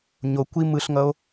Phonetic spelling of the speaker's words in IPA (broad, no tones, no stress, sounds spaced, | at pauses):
ɲ o kʷ i m ɯ ɬ ŋ ʌ o̯